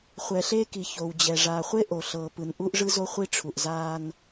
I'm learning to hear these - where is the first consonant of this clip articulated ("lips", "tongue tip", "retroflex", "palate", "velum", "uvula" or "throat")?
uvula